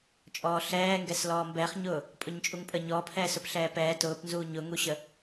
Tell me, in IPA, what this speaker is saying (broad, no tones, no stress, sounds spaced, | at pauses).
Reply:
t͡ʃʼ ɔː ɬ ɛː ŋ ɡ ɛ s l ɔː m b ɛː χ ɲ ʊː | pʼ ʊ ɲ t͡ʃʼ u ŋ pʼ ə ɲ ɔː pʰ ɛː s ʊ p ɬ ɛː p ɛː t ʊː p n z uː ɲ ʊ ŋ u ɕ ə